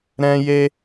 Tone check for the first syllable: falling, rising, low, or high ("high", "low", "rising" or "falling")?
high